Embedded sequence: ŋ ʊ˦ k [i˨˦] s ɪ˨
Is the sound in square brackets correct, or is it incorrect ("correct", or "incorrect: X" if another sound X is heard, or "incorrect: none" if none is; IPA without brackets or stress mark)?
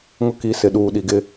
correct